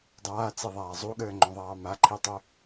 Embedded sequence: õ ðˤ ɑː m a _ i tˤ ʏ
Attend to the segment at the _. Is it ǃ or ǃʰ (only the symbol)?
ǃʰ